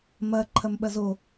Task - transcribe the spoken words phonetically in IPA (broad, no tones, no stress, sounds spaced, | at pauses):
m ɐ ǃʰ ɐ m ɓ ɐ z o